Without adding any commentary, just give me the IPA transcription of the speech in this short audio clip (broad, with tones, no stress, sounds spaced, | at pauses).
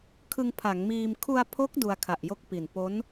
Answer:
kʰ ɯ˧ ŋ pʰ a˩˦ ŋ m iː˧ m kʰ u˧ a̯ pʰ o˦˥ k̚ d u˧ a̯ kʰ a˨˩ ʔ j o˥˩ k̚ p i˨˩ n p o˦˥ n